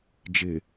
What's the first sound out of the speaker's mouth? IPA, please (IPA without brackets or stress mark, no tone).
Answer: d͡ʒ